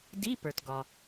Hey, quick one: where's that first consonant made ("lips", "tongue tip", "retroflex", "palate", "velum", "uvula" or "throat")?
tongue tip